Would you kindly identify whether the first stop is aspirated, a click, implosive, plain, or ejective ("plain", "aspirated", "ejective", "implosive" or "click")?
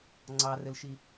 click